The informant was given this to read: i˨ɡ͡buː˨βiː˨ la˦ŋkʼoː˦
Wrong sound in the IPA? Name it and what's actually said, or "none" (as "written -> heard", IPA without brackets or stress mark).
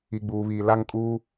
oː˦ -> uː˦